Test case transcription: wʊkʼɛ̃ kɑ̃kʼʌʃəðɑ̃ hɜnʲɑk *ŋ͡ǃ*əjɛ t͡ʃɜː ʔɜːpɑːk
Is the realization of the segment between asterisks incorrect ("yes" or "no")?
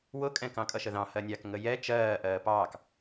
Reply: yes